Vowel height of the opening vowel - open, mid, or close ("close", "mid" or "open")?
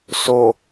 mid